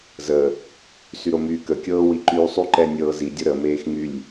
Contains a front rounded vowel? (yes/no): yes